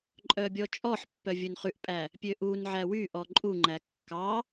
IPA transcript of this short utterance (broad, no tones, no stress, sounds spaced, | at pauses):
ǃʼ œ bʲ ɔ t͡ʃʼ ɔ ħ pː œ vʲ ɵ n χ ʉ ʔ pʼ æ | pʲ ø ʔ u n ʕ æ w y ʔ ɔ ǃʼ u ŋ͡ǃ æ kː ɑ